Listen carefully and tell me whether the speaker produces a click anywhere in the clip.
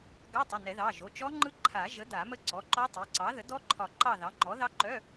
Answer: yes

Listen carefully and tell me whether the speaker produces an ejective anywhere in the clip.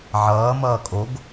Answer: yes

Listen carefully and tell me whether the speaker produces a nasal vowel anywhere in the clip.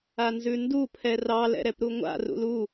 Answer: no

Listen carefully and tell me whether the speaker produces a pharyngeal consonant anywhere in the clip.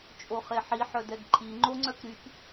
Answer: yes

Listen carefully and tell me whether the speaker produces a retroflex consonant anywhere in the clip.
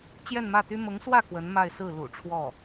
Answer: yes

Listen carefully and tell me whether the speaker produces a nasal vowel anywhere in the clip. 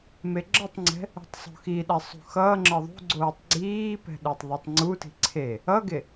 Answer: no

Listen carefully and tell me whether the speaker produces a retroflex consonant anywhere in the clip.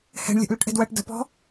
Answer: yes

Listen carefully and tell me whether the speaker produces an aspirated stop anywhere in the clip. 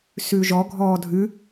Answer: no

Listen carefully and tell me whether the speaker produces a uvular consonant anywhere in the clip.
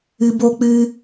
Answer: no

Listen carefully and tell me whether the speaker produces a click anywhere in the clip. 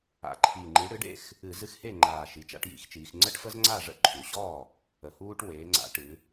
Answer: yes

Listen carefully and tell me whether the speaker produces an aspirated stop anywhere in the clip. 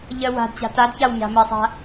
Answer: no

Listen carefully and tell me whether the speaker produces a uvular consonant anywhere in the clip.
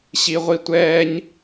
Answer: yes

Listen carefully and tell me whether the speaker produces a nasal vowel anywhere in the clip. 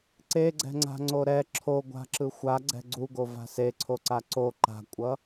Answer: no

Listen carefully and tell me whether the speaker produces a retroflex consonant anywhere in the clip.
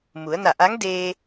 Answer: no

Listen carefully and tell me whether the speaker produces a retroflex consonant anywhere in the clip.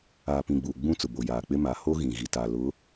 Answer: no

